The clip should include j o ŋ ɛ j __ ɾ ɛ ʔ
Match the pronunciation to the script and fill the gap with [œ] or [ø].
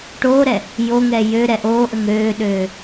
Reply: ø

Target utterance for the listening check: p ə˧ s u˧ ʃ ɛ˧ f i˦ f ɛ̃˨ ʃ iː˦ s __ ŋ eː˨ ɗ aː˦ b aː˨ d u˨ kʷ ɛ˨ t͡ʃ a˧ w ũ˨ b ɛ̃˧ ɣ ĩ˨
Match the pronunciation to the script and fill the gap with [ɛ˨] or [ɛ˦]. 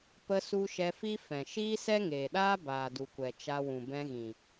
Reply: ɛ˦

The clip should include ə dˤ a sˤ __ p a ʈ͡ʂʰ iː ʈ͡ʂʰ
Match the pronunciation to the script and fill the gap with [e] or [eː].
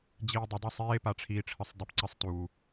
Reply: eː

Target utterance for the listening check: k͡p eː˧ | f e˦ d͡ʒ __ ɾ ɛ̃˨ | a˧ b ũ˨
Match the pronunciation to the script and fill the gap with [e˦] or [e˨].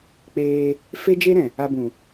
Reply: e˦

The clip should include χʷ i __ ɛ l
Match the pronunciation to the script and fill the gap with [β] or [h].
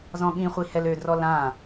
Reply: h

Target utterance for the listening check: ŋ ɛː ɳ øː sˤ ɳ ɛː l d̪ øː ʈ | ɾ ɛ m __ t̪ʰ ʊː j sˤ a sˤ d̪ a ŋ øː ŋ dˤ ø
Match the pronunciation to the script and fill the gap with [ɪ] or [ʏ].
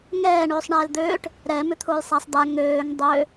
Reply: ʏ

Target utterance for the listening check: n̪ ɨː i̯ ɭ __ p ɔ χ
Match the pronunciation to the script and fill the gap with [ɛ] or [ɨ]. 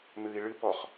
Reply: ɨ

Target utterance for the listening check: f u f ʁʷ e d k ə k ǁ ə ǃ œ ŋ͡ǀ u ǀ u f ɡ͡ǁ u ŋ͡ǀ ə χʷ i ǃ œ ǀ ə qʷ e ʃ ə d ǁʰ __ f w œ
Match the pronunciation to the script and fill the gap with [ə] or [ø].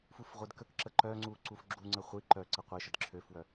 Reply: ø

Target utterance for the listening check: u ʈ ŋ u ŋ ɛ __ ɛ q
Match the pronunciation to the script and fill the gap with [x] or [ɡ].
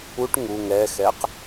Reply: x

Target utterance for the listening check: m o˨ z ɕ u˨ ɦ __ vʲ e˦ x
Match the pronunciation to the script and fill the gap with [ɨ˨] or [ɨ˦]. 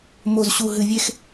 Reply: ɨ˨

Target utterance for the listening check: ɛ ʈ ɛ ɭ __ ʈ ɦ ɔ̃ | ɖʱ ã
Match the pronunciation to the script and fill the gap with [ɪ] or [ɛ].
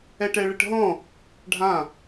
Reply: ɪ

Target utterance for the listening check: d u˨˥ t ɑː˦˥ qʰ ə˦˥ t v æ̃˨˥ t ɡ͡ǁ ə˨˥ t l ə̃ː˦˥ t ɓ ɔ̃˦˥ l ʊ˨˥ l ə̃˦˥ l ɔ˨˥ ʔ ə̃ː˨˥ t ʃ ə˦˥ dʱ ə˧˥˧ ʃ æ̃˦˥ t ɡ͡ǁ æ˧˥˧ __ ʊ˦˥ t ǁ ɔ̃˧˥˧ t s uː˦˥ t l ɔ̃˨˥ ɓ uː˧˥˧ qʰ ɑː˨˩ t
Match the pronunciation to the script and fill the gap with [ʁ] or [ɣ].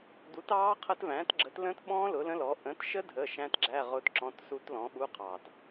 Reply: ʁ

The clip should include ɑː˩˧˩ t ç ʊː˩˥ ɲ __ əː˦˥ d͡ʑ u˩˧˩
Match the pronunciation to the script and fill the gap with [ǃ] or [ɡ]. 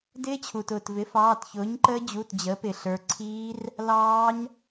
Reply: ǃ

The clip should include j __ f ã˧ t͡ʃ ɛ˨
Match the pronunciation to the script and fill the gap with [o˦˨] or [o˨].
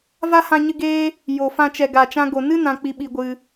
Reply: o˨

